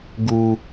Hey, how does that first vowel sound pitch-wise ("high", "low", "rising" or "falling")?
high